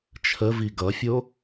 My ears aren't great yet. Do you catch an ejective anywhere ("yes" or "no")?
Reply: no